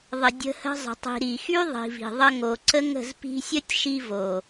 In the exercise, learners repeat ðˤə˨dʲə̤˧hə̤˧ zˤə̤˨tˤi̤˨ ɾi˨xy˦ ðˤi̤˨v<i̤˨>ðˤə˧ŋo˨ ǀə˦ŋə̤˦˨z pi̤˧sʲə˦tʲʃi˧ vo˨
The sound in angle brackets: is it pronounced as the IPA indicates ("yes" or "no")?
yes